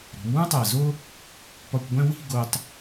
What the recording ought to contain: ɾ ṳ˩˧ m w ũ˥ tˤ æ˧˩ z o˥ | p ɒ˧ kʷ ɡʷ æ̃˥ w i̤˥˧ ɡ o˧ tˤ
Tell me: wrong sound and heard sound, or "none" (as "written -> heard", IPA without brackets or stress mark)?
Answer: none